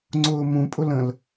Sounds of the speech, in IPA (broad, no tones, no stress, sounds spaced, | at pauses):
ŋ͡ǀ ʊː m ũ pʼ ʊ l ə̃ l